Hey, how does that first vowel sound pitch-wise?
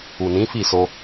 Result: low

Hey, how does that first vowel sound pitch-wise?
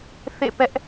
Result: falling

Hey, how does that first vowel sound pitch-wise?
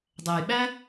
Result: low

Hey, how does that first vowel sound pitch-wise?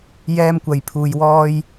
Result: high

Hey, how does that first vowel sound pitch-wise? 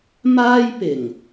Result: high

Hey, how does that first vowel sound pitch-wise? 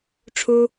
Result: high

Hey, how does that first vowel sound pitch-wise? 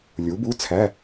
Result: rising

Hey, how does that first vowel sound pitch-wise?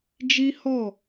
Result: high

